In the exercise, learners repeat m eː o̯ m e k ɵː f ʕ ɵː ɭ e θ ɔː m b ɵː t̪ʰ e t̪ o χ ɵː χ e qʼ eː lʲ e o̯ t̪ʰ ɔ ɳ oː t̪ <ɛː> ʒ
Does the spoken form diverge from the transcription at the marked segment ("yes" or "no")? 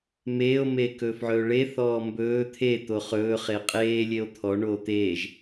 yes